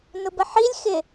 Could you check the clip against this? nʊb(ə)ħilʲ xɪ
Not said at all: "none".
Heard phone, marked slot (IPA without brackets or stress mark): ə